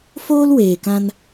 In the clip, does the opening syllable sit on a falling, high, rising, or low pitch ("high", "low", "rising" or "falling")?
high